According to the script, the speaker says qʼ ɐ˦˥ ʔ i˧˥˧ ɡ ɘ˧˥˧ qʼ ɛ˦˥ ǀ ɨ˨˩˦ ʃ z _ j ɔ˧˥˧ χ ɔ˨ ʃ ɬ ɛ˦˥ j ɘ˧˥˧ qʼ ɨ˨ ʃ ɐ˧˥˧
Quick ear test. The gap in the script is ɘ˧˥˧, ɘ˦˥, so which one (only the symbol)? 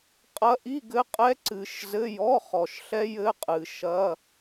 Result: ɘ˧˥˧